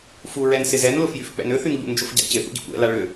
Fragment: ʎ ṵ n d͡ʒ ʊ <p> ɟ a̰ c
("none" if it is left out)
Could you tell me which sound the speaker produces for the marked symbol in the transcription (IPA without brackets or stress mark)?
f